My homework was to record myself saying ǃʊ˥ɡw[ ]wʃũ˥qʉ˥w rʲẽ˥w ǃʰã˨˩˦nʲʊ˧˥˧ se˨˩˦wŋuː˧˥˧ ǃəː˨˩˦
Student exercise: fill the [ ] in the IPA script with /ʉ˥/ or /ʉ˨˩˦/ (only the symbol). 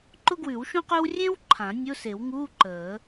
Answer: ʉ˨˩˦